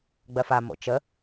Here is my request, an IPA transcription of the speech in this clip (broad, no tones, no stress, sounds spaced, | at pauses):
ɡ͡b ɜ f a m o̰ t͡ʃ ə